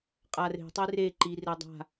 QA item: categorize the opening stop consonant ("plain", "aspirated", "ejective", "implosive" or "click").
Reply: ejective